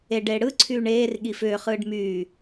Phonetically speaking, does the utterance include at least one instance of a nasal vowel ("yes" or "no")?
no